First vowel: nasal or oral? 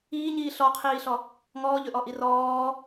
oral